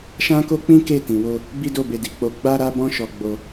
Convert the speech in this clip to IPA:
ʃ ã˦ k o˦ k͡p ĩ˦ k e˦˨ t ĩ˨ w o˧ | b i˦ d o˦˨ b e˧ d i˨ k͡p o˧ ɡ͡b a˧ ɾ a˧ b ɔ̃˧ ʃ ɔ˧ ɡ͡b o˧

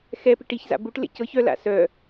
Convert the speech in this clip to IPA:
x ɛ p i ʈ i ç z a̰ b u ʈ l ḛ c ɤ ç œ l a̰ s œ

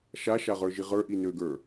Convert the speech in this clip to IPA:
ʃ a ʃ a ʁ ə˞ ʒ i ʁ ə˞ ʔ i n ø ɡ ə˞

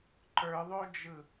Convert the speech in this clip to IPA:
ǃ ə˞ ðˤ o d͡ʒ ɯ

